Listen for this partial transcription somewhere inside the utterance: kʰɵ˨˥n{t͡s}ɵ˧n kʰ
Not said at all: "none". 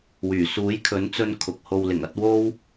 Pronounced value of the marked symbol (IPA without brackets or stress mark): t͡s